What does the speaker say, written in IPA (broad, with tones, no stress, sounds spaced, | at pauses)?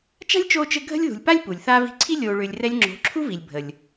t͡ʃ a̤˦ lʲ t͡ʃ oː˦ t͡ʃ ɘ˦ ɡʱ ə̤˦ lʲ ð ṳ˨ lʲ p a˦ lʲ p u˨ lʲ θ a˦ v i̤˧ ǀʰ i˦ lʲ oː˨ ɭ ʏː˨ lʲ r ɛ˧ lʲ ŋ͡ǁ o̤˨˦ ǁʰ u˦ v i˨ lʲ bʱ ə˨ lʲ